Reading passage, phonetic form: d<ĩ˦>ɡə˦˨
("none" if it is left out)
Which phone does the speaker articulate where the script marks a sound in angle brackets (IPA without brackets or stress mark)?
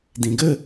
ĩ˨